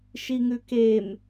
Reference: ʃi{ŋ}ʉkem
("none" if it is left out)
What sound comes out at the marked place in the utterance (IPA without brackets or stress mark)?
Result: ŋ